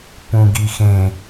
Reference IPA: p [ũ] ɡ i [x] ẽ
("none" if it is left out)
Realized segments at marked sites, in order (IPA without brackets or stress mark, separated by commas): ũ, x